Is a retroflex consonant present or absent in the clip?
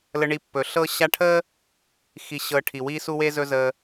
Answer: present